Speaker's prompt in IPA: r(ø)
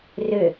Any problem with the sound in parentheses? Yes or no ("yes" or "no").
no